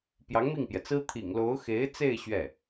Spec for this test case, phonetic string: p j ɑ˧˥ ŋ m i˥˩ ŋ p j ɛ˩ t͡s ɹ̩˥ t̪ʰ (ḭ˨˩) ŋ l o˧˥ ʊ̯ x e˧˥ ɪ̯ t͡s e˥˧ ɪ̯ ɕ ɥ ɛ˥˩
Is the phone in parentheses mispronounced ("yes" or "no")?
no